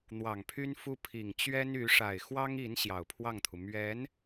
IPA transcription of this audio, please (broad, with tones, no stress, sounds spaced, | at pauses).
n̪ w ɑ˨˩ ŋ pʰ y˥ n f u˥ pʰ i˨˩ ŋ t͡ɕ ɥ ɛ˥ n y˧˥ ʂ a˨˩ ɪ̯ x w ɑ˥ ŋ i˧˥ n ɕ j ɑ˨˩ ʊ̯ pʰ w ɑ˥˩ ŋ t̪ʰ u˩ m ɥ ɛ˧˥ n